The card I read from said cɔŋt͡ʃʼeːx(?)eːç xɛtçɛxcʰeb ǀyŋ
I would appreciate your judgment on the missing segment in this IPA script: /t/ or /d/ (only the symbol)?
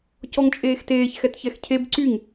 t